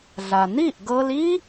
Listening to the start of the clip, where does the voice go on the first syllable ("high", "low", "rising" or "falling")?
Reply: low